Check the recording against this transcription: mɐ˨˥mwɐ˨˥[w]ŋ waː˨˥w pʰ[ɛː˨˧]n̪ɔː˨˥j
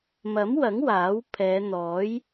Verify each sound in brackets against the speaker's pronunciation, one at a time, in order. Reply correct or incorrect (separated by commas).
incorrect, correct